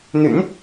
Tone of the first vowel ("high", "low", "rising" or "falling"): low